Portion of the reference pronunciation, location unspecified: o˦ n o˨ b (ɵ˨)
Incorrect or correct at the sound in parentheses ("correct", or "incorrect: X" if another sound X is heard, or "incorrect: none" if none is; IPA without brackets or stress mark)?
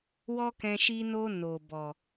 incorrect: ɔ˨